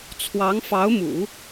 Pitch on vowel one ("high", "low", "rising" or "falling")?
rising